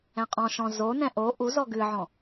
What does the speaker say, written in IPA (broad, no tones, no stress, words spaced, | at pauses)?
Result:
ɛ̃qʼɔ̃ʃɔ̃ zonɛ̃ ʔo ʔuzɔ ɡɨʕɔ̃